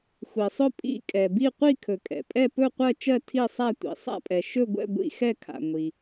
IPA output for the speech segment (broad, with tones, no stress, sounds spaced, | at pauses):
xʷ i˨ sˤ ɵ˥˧ pʼ ḭ˥˧ kʼ ɛ˨ b i˥˧ qʷ i˥˧ kʰ ɵ˨ kʼ ɛ̰˨ pʼ ɛ˥˧ p ɵ˥˧ qʷ ɜ˥˧ t͡ʃ ɜ˥˧ tʰ i˥˧ sˤ a˥˧ tʷ ḭ˨ sˤ a̰˥˧ pʼ ɛ˨ ʃ ɵ˥˧ ɡʷ ɛ̰˥˧ ɡʷ ḭ˥˧ x ɛ˥˧ kʰ a̰˨ ŋʷ i˨